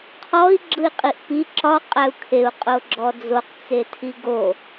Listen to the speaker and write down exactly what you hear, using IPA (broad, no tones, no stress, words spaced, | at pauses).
qʰɔi̯ ɡ͡ǁɯi̯qʼiʔpi ǁɒ qʼæu̯kʰeu̯ qʼoɡ͡ǁɔd͡zoq t͡setʰiɡo